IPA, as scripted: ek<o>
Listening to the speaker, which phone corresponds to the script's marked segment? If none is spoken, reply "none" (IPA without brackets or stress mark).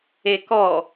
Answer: ɔ